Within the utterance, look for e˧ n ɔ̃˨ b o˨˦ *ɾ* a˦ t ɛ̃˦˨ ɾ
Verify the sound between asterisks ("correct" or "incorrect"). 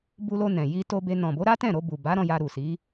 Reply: correct